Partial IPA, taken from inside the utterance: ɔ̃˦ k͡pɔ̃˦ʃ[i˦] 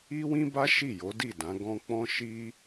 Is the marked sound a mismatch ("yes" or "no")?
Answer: no